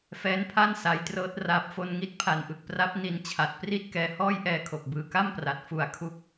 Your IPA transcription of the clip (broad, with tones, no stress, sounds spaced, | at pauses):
f ɛː˦˥ n pʰ a˥˩ n s a˩˦ j t r ɤː˦˥ t̚ r aː˨˩ p̚ f o˧ n ŋ i˦˥ t̚ pʰ a˨˩ n ʔ ɯ˨˩ k̚ p r a˦˥ p̚ n i˨˩ n t͡ɕʰ a˨˩ t̚ p r i˥˩ t̚ k ɛː˧ h ɔː˥˩ j ʔ ɛː˧ kʰ o˨˩ k̚ b ɯː˩˦ k a˥˩ m p r a˨˩ t̚ f u˨˩ a̯ kʰ u˦˥ k̚